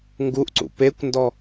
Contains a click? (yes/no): yes